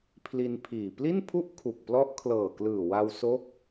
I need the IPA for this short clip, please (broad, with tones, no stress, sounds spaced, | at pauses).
pʰ l i˧ n pʰ iː˨˩ p l i˥˩ n pʰ u˥˩ ʔ kʰ u˨˩ k̚ p l ɔ˦˥ ʔ kʰ l ɤː˨˩ k l ɯː˨˩ w a˧ w s o˦˥ k̚